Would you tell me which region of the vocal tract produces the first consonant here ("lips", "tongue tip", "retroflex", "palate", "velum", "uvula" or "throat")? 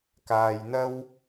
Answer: velum